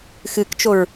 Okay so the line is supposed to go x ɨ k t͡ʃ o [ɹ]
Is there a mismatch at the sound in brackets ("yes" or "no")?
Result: no